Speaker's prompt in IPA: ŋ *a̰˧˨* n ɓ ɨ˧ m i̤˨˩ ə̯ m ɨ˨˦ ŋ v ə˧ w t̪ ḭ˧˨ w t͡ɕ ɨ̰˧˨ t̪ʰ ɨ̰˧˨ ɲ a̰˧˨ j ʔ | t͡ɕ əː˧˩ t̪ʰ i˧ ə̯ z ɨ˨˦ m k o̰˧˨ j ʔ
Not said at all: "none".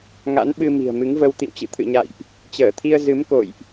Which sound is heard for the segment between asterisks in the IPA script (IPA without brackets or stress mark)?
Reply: a̰˧˥